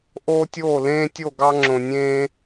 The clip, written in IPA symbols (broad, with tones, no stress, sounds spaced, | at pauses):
ʔ oː˦ tʲ oː˦˨ l ẽː˦ tʲ o˦˨ ɡ ɑ˦ ŋ͡ǁ õ˨ nʲ ẽː˦